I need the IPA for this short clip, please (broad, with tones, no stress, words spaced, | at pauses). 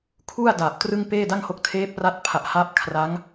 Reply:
kʰu˥˩a̯ daː˨˩p̚trɯ˥˩ŋ peː˥˩da˥˩ŋho˦˥k̚ tʰeː˦˥p̚ra˦˥t̚ pʰa˨˩ʔhaː˦˥p̚ kʰra˦˥ŋ